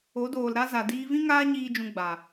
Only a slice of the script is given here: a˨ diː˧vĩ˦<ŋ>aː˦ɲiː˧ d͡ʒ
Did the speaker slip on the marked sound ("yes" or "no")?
no